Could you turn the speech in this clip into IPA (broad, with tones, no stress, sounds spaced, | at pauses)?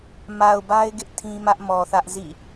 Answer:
m a˨ ʊ̯ b a˦ ɪ̯ ɡ ɪ˦ ʔ tʰ ĩ˦ m ä˦ ʔ m ɔ˨ θ ä˦ ʔ z ḭ˦˨